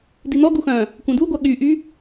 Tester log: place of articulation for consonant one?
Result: alveolar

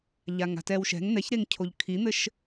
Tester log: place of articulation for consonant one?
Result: palatal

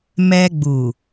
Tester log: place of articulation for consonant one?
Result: labial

